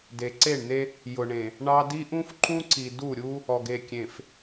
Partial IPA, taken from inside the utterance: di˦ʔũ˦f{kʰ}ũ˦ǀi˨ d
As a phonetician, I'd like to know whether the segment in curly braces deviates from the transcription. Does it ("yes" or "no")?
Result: yes